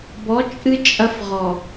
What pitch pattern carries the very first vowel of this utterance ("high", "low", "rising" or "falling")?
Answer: rising